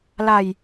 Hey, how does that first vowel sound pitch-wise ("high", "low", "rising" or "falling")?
falling